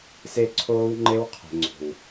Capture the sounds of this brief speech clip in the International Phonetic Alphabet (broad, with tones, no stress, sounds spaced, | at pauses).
s e˦ ǀʰ oː˦ w ŋ͡ǃ e˦ w qʰ e̤˨ ŋ͡ǀ o̤˨ w